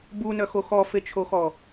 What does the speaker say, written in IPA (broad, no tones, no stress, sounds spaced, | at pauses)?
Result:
b u n œ x o x ɔ f e t͡ʃʰ o x ɔ